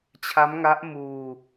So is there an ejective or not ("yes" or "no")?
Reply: no